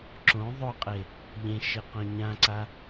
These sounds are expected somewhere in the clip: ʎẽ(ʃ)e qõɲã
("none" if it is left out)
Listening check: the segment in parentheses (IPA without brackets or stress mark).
ʃ